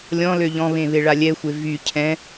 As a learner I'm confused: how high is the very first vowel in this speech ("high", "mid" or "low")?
mid